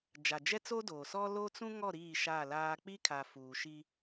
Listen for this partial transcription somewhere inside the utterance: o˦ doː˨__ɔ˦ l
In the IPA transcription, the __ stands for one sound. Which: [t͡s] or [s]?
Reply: s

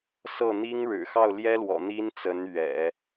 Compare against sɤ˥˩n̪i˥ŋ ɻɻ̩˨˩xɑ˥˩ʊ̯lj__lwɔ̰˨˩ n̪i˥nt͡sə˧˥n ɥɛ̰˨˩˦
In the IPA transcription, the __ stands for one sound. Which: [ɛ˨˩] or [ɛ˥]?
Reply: ɛ˥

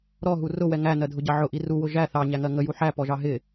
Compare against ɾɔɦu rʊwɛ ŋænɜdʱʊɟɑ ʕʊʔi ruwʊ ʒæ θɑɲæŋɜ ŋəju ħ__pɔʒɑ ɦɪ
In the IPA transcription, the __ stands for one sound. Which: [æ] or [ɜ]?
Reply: æ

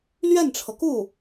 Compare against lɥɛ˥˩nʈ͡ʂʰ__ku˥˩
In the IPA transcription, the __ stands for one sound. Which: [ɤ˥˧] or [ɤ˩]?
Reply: ɤ˩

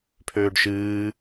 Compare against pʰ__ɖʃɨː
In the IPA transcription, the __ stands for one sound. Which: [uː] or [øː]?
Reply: øː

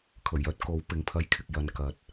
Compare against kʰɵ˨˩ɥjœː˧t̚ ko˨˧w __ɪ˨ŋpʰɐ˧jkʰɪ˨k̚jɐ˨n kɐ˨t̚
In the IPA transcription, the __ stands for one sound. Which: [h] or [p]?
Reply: p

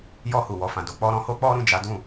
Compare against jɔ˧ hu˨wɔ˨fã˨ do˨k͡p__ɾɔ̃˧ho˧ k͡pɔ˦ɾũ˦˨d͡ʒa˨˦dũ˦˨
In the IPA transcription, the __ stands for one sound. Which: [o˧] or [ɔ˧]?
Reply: ɔ˧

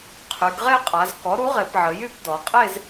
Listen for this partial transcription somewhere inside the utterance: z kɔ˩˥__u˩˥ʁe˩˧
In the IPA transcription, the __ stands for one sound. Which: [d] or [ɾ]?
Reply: ɾ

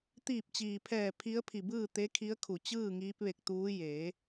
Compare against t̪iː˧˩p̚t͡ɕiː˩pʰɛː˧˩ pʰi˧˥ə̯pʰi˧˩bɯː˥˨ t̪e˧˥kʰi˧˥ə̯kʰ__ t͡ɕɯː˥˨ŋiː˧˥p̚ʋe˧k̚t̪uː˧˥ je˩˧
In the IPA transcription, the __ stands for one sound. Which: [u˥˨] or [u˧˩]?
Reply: u˧˩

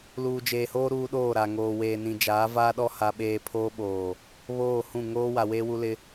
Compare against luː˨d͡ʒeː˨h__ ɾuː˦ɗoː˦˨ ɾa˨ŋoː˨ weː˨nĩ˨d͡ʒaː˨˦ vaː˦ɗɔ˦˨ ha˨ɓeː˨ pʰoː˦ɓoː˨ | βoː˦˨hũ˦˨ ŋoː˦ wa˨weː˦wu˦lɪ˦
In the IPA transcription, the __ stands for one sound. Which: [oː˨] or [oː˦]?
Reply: oː˦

